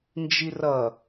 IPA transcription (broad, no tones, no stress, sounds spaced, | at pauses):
n d͡ʒ i r ʌ